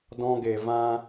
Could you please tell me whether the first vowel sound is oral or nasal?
nasal